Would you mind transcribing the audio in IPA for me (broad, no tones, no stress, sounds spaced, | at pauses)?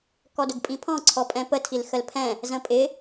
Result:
k ɔ d ʊ ɡ pʼ ĩ pʰ ɔ̃ ǀʰ ɔ pʼ ɛ̃ p ə tʰ i l x ə l pʰ ɛ̃ | z ə̃ pʼ ɪ